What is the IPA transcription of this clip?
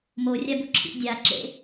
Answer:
m o rʲ a b u ǁʰ ḭ dʲ a ǁ ḛ

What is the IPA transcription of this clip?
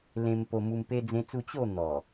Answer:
l ẽ˧ m p o˧ m u˧ m p e˧ d͡z ẽ˧ t͡s u˧ t͡ɕ o˥˧ n̪ ɔ˨˩

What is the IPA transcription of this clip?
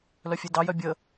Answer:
l œ fʲ e d ɑ j œ bʲ ə

